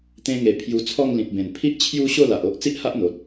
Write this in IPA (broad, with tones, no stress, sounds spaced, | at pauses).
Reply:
t̪ ẽ˧ ŋ e˨˩ pʰ j u˧ t͡sʰ ɔ˥˧ ŋ l ĩ˨ p̚ b ẽ˨˩ n pʰ i˦ ʔ t͡ɕʰ j u˦ ɕ o˥˧ l a˨ ʔ o˦ ʔ t͡s i˦ ʔ h a˦ ʔ n̪ o˨ t̚